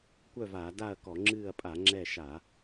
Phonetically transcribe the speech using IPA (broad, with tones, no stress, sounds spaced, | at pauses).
kʷ œ˥˨ v aː˧˩˧ d a˥˨ ɐ̯ k ɔ˧˩˧ ŋ͡ǁ ɨː˥˨ ɐ̯ pʼ a˧˩˧ ŋ͡ǁ ɛ˥˨ ʃ a˧˩˧